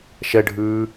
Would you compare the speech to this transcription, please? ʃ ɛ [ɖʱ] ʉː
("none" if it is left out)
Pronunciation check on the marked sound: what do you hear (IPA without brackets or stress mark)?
ɖʱ